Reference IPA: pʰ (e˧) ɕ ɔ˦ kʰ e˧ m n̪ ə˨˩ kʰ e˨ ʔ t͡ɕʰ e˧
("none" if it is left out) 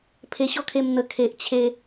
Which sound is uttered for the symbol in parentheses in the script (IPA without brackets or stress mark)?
e˧